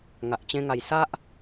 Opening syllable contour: low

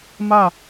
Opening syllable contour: falling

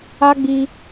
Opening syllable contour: high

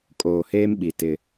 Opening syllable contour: low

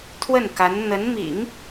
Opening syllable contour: falling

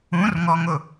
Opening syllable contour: rising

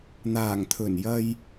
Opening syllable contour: low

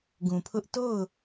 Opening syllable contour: low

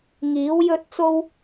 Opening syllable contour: rising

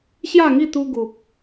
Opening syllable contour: falling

